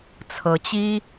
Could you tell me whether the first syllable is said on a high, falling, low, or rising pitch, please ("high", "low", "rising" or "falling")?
rising